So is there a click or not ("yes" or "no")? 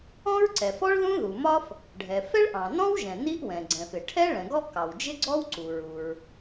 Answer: yes